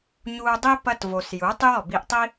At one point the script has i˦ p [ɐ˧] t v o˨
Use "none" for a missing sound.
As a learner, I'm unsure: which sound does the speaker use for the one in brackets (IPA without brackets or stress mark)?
ɐ˧